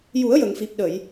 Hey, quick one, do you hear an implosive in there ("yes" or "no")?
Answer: yes